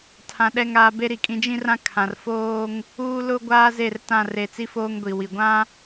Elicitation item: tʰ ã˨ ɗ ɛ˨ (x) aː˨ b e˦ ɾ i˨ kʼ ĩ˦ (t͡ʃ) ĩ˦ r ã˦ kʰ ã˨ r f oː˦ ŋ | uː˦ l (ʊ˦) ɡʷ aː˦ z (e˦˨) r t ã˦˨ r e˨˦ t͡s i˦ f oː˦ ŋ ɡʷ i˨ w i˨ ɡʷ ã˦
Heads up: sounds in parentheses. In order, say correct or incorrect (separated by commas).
incorrect, incorrect, correct, correct